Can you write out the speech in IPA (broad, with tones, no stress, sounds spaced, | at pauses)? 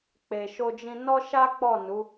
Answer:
k͡p e˨ ʃ o˧ d͡ʒ ĩ˧ n ɔ˦ ʃ a˦ k͡p ɔ˦˨ n u˨˦